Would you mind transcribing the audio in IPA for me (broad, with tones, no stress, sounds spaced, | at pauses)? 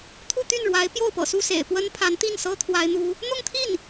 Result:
t̪ʰ u˥˧ t̪ y˥˩ n ɻ w a˧˥ ɪ̯ p j o˥˩ ʊ̯ p ɤ̰˨˩ s u˥˩ s ḛ˨˩ ɪ̯ p w ə˥ n pʰ a˧˥ n t̪ i˥˩ n s ɤ˥ t̪ʰ w a˥ ɪ̯ n̪ u˥ | n̪ ʊ˥˧ ŋ t̪ʰ i˥˩ n